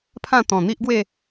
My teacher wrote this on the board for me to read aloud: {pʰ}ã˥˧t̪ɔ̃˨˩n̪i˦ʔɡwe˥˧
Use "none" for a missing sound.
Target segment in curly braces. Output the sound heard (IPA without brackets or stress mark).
pʰ